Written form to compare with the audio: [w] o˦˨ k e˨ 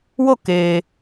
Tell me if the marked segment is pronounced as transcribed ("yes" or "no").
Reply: yes